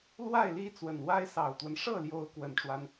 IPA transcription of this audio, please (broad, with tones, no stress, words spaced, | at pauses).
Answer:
lwa˥˩ɪ̯ li˥t͡swə˨˩n wa˥ɪ̯sɑ˨˩ʊ̯t̪wə˦n ʂɤ˥˩ljo˧˥ʊ̯ kwə˨˩nʈ͡ʂwa˦n